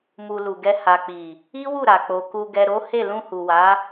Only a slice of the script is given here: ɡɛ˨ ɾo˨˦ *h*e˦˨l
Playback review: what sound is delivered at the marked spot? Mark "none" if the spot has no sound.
h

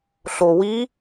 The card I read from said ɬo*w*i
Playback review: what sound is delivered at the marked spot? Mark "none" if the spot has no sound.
w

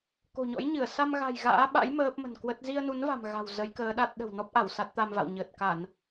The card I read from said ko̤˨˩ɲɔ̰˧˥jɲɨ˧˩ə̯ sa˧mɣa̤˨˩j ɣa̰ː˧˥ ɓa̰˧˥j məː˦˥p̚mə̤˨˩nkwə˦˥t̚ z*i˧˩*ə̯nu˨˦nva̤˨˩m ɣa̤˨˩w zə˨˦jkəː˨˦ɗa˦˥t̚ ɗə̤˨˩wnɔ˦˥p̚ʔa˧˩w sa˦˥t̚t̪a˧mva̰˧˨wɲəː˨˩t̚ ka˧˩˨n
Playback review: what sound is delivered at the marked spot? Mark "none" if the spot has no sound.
i˧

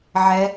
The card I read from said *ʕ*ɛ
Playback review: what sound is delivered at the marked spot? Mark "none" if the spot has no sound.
ʕ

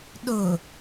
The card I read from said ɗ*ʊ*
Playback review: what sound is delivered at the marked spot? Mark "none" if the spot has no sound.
ʊ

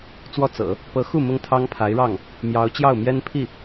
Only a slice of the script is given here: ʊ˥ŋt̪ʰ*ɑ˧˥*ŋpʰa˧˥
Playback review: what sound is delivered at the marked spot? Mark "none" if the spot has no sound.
ɑ˥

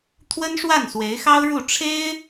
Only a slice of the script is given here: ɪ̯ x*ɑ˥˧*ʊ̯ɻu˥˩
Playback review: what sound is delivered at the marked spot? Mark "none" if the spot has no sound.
ɑ˥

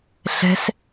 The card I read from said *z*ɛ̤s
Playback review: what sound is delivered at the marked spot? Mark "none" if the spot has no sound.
ɬ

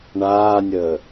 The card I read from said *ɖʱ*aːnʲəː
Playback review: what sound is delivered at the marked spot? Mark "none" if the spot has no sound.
ɳ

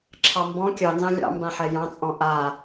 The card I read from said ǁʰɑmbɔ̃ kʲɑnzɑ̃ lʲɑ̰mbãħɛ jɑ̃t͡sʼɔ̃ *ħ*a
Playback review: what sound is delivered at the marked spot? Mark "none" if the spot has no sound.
ʔ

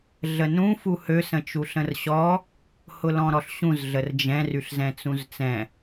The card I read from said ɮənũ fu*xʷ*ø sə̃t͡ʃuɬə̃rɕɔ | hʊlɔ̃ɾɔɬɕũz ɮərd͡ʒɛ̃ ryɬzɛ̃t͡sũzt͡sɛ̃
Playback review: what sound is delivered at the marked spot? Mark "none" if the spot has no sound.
h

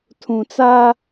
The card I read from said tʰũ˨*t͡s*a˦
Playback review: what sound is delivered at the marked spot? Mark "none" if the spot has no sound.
t͡s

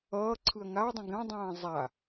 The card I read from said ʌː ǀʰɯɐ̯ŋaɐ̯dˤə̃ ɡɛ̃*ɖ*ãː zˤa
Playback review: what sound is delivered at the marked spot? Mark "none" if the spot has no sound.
dˤ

